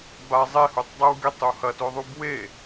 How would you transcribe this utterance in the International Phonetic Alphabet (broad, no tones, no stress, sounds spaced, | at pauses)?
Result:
b a zˤ e h u tˤ dˤ e w ɡ e tˤ u h ɐ t o ðˤ u b w e